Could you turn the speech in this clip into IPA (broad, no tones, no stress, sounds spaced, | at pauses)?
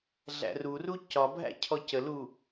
ɮ æ̰ r u r u c ɒ bʱ æ̰ cʰ ɔ c ə l u